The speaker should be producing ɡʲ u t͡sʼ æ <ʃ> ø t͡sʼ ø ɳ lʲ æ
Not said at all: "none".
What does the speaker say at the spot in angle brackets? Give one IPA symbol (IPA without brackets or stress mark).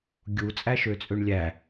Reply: ʃ